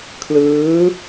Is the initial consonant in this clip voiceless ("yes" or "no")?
yes